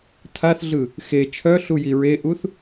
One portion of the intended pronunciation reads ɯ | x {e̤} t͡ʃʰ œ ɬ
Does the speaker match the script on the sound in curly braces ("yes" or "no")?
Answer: no